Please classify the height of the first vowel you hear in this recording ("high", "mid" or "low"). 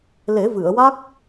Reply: mid